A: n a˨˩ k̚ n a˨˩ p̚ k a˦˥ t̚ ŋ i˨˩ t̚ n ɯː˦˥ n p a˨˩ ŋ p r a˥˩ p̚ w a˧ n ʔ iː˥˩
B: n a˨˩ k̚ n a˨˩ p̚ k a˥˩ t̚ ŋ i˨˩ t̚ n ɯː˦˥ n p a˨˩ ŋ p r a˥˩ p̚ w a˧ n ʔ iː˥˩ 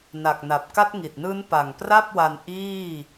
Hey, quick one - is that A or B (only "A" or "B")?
A